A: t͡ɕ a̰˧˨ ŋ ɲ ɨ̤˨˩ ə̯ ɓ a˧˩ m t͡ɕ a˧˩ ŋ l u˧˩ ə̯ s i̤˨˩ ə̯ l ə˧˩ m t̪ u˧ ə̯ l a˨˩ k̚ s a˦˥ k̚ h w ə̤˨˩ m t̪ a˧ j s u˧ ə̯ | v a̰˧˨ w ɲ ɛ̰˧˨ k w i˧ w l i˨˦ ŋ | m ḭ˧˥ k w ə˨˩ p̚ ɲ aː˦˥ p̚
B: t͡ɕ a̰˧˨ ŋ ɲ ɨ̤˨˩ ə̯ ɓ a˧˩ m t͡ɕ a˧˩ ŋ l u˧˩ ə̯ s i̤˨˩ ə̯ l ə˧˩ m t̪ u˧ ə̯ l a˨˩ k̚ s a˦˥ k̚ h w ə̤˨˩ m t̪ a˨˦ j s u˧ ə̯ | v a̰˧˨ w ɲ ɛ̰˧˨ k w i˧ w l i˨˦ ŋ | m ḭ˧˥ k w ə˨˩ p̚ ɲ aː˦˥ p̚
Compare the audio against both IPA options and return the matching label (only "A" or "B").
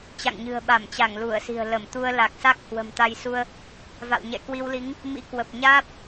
A